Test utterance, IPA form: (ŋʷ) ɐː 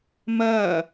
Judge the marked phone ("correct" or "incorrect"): incorrect